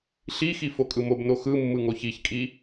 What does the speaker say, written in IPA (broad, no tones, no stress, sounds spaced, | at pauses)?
ɬ i x i f o kʼ ɯ m o b n o x ɯ mː ɯ ŋ o ç i ç kʼ i